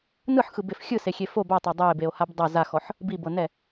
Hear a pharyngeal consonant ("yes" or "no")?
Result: yes